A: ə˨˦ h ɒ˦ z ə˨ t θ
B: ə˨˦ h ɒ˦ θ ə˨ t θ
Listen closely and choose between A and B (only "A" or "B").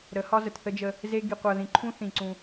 A